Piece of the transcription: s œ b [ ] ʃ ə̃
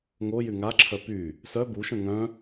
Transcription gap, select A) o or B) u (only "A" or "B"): B